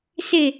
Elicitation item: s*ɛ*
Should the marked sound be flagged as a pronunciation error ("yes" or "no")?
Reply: yes